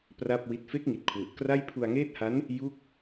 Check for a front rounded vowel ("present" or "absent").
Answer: absent